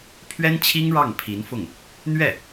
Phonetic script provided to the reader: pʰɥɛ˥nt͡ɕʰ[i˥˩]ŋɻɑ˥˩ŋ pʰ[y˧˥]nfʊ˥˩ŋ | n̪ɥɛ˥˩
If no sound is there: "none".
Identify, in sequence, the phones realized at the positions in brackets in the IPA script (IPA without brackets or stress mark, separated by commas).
i˥, i˧˥